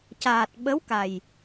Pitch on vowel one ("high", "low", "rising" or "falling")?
low